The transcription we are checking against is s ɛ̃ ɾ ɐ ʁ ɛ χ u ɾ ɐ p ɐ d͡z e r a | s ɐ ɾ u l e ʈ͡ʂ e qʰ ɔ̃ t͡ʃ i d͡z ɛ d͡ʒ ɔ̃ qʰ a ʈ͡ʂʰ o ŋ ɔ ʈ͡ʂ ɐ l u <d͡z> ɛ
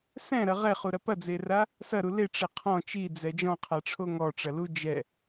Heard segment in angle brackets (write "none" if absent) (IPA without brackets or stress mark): d͡ʒ